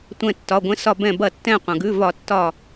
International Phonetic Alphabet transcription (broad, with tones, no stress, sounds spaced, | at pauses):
tʷ ɛ̃˧˩ tː ɒ˩˧˩ ɡʷ ɛ̃˨˥ s ɒ˧˩ b ɛ̃˧˩ b ɐ˧˩˧ tː ɛ̃˧˩ qʷ ɐ̃˩ ɡ ʉ˩˧˩ v ɒ˧˩˧ tː ɒ˧˩